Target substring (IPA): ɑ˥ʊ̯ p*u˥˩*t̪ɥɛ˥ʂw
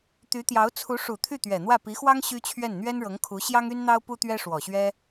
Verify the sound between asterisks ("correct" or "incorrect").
incorrect